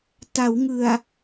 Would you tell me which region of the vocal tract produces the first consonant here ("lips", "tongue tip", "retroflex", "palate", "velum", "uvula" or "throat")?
tongue tip